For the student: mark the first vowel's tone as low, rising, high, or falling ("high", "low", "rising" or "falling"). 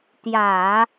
low